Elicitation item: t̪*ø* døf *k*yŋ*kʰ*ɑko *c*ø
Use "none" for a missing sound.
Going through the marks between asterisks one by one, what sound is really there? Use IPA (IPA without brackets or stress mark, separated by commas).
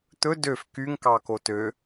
ɵ, k, k, t